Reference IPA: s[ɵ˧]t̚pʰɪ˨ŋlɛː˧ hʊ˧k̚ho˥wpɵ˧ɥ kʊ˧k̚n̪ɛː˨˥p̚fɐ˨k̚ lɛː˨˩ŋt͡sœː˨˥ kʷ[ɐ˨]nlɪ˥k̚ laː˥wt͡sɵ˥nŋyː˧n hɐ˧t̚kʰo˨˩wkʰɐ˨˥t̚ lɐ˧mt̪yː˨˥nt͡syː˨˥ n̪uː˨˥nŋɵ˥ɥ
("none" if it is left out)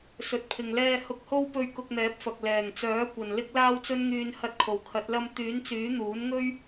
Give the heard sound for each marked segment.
ɵ˨, ɐ˨

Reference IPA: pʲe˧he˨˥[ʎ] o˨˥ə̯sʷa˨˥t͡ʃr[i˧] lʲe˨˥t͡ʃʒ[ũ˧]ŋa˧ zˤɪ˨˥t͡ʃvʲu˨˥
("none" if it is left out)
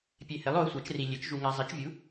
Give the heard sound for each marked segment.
lˠ, i˧, u˧

